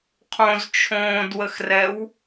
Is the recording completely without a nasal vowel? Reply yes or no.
no